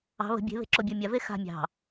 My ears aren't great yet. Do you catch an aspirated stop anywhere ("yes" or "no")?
no